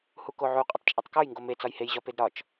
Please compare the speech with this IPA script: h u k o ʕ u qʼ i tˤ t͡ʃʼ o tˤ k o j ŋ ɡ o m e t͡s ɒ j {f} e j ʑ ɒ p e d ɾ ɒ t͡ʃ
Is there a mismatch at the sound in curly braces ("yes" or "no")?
yes